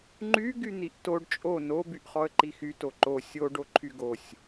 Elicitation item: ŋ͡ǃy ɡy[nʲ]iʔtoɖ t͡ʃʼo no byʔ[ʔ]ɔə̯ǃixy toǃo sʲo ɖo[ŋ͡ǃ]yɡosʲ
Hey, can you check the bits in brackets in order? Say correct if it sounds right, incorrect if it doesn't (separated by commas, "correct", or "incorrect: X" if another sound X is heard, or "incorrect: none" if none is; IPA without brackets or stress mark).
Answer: incorrect: n̪, incorrect: χ, incorrect: ǃʰ